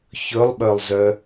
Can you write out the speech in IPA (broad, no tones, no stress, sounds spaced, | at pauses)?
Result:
ç ɵ lˠ ɓ œ lˠ z œ